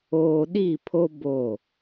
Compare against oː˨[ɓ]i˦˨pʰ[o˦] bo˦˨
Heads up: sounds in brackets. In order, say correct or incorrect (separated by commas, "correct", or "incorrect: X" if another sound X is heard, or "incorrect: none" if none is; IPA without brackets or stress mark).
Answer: incorrect: ɗ, correct